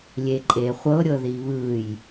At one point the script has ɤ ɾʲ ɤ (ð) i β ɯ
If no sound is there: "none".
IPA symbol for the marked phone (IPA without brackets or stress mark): ð